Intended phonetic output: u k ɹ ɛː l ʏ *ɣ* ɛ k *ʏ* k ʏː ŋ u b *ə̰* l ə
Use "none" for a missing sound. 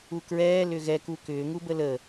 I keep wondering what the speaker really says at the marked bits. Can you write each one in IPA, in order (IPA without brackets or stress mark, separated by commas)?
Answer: ɣ, u, ə